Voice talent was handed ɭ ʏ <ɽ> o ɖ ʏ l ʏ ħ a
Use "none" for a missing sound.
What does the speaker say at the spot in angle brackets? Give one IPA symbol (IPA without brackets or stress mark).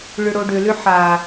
ɽ